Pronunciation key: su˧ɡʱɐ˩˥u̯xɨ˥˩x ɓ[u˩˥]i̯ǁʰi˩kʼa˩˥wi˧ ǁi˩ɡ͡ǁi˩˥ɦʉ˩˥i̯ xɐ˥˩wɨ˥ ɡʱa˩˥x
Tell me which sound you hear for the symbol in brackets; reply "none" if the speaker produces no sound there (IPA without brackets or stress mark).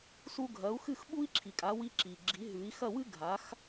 u˥